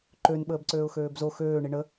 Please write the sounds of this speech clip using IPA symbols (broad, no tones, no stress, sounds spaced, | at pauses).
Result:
ǃ ø n ɓ əː b ǀ øː ʊ̯ x øː b z o x øː ɳ i ɳ ə